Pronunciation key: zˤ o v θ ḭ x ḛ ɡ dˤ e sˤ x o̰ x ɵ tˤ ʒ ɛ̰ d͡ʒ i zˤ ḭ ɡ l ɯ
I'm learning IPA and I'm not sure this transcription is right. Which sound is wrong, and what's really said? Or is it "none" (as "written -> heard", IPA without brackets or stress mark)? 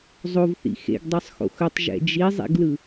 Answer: none